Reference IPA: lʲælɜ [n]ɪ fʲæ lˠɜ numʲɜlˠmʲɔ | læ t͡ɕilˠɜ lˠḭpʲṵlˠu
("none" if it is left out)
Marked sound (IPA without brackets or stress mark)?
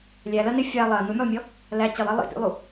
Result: n